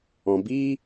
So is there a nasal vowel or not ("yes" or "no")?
yes